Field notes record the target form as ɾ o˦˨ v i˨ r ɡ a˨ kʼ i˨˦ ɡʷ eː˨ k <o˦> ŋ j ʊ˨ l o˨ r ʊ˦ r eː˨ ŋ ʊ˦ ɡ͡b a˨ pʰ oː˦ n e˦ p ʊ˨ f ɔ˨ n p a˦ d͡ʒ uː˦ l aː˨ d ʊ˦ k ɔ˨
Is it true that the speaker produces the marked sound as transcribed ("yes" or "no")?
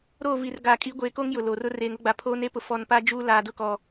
yes